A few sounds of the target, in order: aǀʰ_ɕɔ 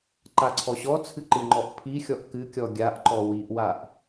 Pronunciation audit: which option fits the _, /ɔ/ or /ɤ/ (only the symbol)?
ɔ